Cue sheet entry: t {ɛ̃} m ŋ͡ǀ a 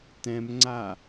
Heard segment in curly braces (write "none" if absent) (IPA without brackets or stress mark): ɛ̃